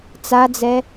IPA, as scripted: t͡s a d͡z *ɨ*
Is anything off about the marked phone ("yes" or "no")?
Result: yes